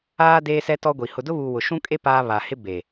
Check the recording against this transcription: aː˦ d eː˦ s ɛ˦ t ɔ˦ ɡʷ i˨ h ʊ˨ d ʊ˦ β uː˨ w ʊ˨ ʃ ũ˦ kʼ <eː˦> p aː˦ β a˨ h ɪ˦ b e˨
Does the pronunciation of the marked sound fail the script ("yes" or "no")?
yes